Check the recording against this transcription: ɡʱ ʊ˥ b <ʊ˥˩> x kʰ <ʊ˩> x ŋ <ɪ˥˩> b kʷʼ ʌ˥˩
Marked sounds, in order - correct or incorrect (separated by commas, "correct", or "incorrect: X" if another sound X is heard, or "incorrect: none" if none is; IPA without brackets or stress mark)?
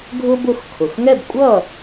correct, correct, incorrect: ɛ˥˩